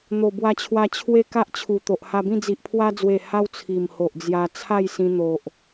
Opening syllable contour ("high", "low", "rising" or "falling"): low